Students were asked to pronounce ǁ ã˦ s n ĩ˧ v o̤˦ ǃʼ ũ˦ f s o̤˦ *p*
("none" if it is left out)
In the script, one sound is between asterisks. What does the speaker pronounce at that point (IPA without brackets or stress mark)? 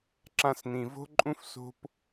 p